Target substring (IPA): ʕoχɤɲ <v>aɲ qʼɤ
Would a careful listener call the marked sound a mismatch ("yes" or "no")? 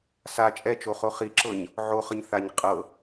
yes